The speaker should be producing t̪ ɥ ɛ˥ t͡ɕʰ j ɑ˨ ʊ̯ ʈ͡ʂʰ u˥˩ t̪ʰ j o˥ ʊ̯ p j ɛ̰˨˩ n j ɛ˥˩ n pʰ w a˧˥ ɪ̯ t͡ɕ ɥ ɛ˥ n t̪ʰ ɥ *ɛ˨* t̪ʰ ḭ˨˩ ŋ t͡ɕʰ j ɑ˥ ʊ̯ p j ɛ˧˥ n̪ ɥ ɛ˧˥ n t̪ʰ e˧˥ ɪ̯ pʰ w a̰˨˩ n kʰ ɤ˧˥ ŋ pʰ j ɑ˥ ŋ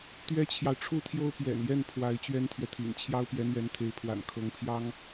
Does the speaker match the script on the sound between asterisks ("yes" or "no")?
yes